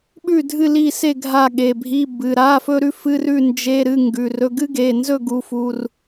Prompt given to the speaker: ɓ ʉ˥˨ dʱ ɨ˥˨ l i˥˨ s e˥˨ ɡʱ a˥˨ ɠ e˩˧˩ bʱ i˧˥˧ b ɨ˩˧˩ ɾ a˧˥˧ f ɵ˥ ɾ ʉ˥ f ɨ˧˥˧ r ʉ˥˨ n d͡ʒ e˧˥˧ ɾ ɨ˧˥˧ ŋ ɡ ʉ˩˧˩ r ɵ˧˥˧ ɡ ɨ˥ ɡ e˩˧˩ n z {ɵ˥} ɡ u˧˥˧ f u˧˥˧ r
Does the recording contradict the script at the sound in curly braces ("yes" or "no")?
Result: yes